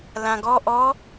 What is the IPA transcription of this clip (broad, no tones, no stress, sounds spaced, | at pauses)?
l ã ɡ ɔ ʔ ɔ